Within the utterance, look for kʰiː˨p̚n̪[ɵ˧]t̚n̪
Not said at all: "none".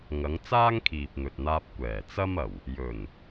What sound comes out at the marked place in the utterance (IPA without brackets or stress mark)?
ɵ˨